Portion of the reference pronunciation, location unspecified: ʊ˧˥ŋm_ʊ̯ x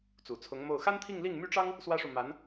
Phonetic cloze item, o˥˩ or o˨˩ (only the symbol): o˥˩